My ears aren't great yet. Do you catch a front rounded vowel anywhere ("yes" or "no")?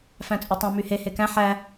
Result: yes